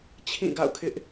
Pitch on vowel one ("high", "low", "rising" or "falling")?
falling